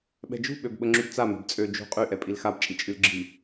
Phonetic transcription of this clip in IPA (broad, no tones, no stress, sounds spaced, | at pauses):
ɓ ɛ̤ d͡ʒ ṳ ɓ ø b ɓ ə ŋ͡ǁ y b t͡s a m ɛ̤ b t͡sʼ ø d͡ʒ ṳ qʼ y ʔ ɛ pʼ i l x a b t͡ʃʼ i t͡ʃʼ y l ɡ͡ǁ i